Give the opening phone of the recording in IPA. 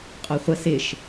qʼ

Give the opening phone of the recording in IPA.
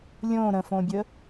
lʲ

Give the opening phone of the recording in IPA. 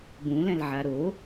b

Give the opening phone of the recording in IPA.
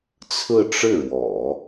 t͡sʰ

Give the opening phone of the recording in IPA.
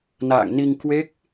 n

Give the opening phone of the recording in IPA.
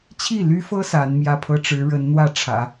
t͡ɕʰ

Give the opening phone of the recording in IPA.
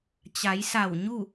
t͡ɕ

